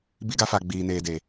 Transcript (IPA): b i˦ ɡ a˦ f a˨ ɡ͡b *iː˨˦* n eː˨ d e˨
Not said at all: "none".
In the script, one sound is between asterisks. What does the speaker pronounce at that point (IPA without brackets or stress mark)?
iː˨